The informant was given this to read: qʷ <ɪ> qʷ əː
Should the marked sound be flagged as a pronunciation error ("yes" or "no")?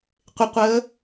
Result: no